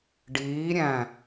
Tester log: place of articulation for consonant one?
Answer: retroflex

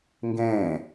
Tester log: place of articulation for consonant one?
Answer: velar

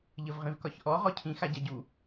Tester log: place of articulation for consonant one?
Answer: palatal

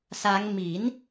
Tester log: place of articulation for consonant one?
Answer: alveolar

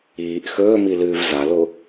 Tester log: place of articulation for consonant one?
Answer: glottal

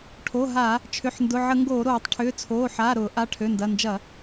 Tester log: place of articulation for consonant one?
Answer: retroflex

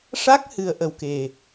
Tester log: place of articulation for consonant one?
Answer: retroflex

